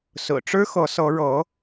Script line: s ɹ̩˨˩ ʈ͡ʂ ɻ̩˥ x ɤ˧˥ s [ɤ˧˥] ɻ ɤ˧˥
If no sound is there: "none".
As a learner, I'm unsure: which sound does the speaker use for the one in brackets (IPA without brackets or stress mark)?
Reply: ɤ˧˥